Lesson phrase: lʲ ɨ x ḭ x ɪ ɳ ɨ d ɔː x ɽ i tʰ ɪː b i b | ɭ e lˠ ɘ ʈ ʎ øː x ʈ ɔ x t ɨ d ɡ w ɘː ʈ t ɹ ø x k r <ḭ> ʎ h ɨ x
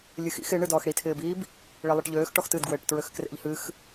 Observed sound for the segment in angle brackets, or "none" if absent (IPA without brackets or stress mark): ḛ